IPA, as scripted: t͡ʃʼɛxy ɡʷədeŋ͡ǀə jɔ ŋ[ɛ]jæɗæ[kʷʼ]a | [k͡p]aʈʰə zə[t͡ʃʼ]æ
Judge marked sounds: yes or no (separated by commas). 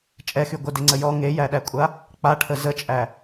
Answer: no, yes, yes, yes